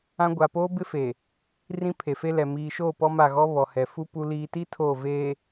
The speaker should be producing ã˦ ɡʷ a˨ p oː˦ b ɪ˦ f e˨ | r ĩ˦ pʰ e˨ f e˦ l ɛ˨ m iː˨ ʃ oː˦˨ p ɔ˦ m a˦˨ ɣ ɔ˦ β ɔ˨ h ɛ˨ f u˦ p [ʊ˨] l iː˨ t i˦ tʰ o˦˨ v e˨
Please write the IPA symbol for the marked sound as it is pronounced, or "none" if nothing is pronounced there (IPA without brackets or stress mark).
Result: u˨